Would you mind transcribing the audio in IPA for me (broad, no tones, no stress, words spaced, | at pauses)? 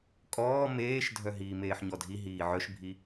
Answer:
kʼɔː meːʃdʱœ ɦiːmeːħɲɔdʱi ɦiːʕœʃbʱi